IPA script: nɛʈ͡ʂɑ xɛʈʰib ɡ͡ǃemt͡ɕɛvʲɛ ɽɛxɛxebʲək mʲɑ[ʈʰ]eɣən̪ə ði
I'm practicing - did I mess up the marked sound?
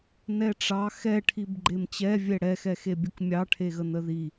no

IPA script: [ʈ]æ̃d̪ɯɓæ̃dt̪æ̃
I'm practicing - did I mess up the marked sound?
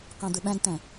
yes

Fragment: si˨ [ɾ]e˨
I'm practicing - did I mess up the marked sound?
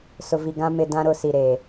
no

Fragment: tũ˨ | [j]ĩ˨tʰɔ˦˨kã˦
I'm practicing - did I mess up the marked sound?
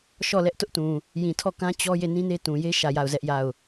no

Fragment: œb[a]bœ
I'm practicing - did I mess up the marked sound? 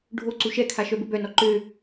yes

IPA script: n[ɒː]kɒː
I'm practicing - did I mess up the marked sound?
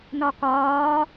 yes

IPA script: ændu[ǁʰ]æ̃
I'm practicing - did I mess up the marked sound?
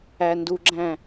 yes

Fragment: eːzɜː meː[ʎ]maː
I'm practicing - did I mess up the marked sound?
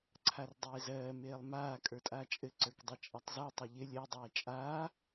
yes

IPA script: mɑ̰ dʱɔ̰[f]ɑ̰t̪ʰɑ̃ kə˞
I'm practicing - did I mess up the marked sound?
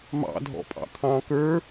yes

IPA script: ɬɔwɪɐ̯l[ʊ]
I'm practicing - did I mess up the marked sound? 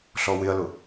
no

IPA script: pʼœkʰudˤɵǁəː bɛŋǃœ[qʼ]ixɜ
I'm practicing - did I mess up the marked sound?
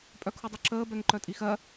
yes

